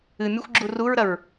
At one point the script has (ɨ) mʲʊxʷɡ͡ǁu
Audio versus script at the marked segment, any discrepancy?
no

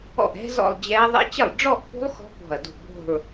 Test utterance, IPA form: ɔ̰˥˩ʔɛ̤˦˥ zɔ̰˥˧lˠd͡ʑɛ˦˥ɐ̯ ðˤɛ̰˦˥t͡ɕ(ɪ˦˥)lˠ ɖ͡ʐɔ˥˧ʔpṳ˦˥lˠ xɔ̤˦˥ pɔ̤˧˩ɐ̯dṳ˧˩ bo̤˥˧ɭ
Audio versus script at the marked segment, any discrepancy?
yes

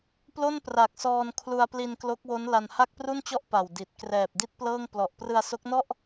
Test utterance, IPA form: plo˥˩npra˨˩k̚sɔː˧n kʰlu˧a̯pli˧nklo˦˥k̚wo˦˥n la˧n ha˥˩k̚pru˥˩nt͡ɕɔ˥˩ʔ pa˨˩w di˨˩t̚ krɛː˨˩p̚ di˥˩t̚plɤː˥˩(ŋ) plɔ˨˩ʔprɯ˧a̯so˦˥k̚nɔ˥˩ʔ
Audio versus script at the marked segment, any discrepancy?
no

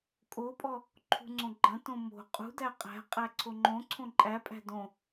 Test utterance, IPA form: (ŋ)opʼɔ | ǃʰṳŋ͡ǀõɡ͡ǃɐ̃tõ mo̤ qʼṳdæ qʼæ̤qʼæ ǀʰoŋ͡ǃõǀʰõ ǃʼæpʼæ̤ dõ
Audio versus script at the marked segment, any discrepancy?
yes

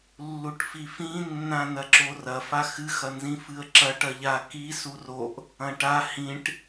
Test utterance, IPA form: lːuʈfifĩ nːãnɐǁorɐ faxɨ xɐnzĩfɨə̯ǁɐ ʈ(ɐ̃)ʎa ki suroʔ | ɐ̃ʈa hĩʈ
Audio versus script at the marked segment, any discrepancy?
yes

